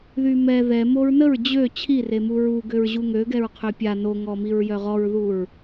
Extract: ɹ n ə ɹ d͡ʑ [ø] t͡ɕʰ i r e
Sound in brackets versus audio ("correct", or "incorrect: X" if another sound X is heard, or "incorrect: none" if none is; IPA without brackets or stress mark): correct